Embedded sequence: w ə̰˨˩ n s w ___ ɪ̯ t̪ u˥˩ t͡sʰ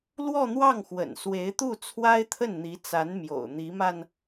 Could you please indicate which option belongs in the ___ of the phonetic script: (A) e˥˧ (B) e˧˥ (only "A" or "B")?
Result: B